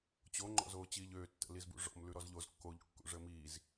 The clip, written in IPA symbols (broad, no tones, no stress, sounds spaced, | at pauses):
t͡ɕ o ŋ͡ǃ ɔ̰ z oː t͡ɕ iː ʎ øː tː ə̰ l i z b ṵ ʐ ɔ̰ m l ʉ ɾ ɔ z ʎ o z kː o ʎ kː ṵ ʐ əː m iː z